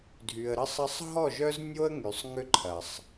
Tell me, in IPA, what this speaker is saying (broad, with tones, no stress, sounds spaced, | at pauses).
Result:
dʱ y˨ ə̯ ɾ ə˦ sˤ ɐ˦ sˤ ɦ ɔ˦˨ ʒ œ˦ z nʲ o˦ ə̯ ŋ y˨ sˤ ŋ ʏ˦ ǃʰ ɐ˨ sˤ